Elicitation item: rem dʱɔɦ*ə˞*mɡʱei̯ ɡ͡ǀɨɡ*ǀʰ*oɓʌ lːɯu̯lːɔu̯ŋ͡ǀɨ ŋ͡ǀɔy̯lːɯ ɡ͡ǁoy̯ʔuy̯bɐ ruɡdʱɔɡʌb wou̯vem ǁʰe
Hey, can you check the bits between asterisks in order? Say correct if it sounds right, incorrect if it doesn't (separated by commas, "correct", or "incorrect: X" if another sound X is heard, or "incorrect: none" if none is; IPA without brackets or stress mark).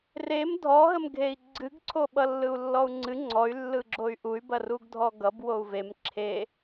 incorrect: ə, correct